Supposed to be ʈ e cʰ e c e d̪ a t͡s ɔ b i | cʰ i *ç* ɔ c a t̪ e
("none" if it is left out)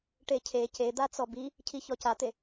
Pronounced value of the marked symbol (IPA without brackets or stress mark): ç